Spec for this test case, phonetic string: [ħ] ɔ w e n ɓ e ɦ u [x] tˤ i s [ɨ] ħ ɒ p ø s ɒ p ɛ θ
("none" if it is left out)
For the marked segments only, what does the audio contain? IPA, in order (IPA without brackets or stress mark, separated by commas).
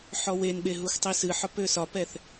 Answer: ħ, x, ɨ